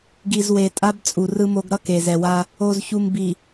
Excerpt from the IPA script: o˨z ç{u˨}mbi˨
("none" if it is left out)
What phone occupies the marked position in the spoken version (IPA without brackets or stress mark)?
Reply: u˨